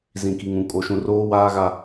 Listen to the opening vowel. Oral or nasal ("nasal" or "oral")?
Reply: nasal